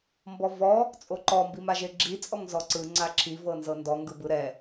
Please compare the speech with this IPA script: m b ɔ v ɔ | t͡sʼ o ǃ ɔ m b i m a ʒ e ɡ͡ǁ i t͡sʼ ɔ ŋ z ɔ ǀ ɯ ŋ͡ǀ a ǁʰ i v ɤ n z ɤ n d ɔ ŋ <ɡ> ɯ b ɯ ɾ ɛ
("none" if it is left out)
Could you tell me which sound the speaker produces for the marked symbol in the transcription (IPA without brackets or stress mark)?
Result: ɡ